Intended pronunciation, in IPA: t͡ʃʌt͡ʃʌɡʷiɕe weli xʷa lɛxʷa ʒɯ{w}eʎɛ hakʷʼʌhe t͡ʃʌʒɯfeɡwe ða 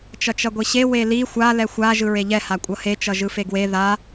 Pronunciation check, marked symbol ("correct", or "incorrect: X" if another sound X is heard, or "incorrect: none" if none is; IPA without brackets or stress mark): incorrect: ɹ